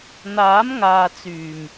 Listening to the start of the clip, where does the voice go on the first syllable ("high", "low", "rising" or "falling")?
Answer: rising